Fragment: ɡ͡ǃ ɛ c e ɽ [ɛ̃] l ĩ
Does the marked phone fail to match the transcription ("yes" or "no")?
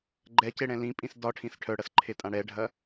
no